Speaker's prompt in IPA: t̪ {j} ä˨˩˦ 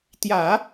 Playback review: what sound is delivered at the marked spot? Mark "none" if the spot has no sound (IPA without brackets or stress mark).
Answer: j